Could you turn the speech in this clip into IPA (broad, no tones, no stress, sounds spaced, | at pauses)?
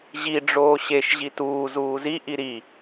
ʑ i ɖ͡ʐ oː ɕ e ʃ ʑ i t uː z uː z i ʔ i ɾ i